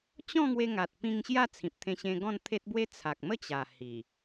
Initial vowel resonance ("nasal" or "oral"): nasal